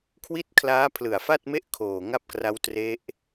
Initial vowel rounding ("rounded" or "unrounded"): unrounded